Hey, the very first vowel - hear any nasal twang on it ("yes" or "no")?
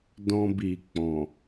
yes